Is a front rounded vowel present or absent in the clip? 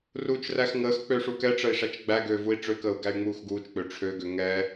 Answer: present